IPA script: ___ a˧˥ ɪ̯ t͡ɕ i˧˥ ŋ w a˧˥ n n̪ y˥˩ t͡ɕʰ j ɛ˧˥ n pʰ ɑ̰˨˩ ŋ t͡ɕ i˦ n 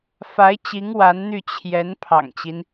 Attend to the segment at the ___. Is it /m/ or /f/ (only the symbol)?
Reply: f